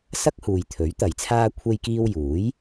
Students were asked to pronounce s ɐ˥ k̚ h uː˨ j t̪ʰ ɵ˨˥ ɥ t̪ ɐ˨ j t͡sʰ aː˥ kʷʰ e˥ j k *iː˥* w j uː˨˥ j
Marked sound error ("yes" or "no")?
no